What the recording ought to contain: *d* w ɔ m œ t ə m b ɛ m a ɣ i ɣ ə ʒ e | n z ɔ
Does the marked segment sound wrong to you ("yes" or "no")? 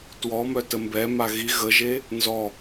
yes